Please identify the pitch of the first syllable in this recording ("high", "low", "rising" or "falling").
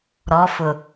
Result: rising